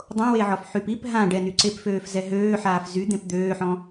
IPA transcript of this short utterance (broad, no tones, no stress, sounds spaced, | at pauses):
dˤ õ w e ʕ ɔ f ħ y p i p ɦ ã ɖ ɛ n y ǀ e p f øː f z ɛ ɦ øː ħ aː f z y d̪ ẽ p d̪ øː ħ ɔ̃